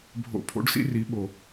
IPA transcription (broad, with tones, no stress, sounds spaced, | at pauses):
bʱ o̰˧ pʰ o̰˦ ɖ s ḭ˦ r i˨˦ ɓ o˨